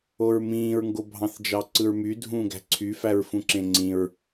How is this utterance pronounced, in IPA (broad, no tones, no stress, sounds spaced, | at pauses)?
o ɹ m ĩː ɹ ŋ ɡ o bʱ ɑ̃ θ d͡ʒ ɑ ǀ ɯ ɹ m y dʱ ũː ɡ æ̤ ǀʰ y f æ ɹ f ũ ǁ ẽ ŋ͡ǀ ĩ ɹ